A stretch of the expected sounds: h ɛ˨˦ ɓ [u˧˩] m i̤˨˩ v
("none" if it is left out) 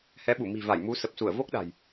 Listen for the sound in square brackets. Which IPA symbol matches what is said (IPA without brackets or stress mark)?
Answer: u˧˩